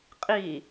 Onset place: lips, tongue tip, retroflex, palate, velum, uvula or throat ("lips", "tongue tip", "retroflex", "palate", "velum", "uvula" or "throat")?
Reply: uvula